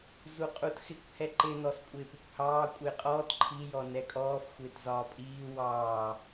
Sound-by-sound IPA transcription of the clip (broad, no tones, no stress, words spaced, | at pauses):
zuqʼutxɪkʷ hɛǃɪ nɔskʷʼɪːpɪkʷhɑː kʷʼɪːqʼɔːt ǃʰi jɔnɛkʼɔːf xʷɪːtzɒːpʼiː wɑː